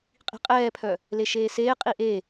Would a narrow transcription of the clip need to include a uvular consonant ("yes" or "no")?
yes